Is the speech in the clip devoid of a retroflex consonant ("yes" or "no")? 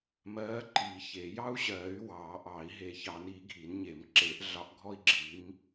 yes